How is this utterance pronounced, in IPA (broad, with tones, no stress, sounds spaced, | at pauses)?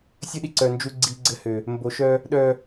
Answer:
sʲ ɘ˦ ɗ i˨ ǀ œ˨ n d͡ʒ u˨ ɡ͡ǀ i˨ ɡ͡ǀ ɘ˦ h ø˨ | m b o˨˦ ʃ œ˦ | ɗ œ˨